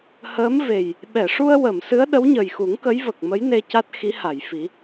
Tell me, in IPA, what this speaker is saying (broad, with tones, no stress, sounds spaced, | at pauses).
h əː˧˥ m v e˨˩ j | ɓ ɛ˨˩˨ ʂ u˧ ə̯ w ə˨˩˨ m s ɨ˧˥ ə̯ ɗ ə˧˥ w ɲ ə˨˩ j x u˨˩˦ ŋ k ə˧˥ j v ə˨˩ k̚ m ə˧˥ j n e˧ c a˦˥ t̚ x i˧˥ h a˨˩˨ j f i˨˩˦